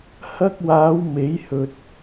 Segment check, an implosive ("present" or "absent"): absent